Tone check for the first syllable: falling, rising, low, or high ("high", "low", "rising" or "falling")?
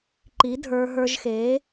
rising